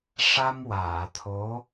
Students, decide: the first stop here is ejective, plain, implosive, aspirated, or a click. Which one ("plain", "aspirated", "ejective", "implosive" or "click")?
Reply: aspirated